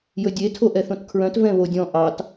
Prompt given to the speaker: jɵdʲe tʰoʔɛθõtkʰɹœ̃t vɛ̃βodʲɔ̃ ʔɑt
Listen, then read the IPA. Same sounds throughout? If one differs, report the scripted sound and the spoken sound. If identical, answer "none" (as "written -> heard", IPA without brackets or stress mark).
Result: none